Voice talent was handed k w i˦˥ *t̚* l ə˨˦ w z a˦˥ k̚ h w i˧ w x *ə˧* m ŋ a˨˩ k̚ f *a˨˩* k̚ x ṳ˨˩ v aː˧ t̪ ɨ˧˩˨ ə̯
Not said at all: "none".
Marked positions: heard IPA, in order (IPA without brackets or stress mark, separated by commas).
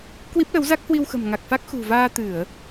p̚, ə̤˨˩, a˦˥